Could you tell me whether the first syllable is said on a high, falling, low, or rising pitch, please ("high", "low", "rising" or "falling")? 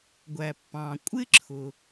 low